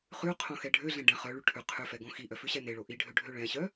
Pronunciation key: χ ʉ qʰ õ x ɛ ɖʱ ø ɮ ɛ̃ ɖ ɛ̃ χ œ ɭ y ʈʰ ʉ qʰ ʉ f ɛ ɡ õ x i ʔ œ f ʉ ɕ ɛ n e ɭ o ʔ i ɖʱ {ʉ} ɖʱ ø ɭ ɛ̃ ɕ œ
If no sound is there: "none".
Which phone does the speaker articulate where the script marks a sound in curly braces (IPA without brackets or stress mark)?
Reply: ø